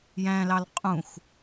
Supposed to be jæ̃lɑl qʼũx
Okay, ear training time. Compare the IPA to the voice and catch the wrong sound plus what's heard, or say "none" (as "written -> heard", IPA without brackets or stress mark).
none